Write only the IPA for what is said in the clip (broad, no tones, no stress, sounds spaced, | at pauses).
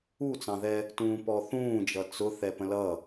u t͡s ɑ̃ ð ɛ | t ũː p ɔ θ ũː d͡ʒ ʌ t͡s ʊ θ ɛ p ə̃ l ʌ